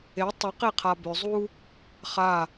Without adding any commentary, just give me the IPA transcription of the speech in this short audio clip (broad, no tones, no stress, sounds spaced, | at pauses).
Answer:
e tˤ ʏ q e qʰ a b ʏ zˤ u | χ a